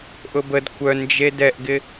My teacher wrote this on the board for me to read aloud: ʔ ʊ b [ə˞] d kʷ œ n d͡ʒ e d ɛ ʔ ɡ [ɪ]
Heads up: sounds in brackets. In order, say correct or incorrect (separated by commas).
incorrect, correct